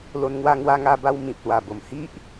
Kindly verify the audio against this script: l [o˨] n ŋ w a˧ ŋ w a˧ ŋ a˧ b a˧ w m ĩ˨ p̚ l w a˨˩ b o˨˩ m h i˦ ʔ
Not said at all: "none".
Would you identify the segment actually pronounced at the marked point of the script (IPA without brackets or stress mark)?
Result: o˧